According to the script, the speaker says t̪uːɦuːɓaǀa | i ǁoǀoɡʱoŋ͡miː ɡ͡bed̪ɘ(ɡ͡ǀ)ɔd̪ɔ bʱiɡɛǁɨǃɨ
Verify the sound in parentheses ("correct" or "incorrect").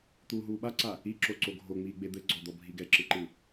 correct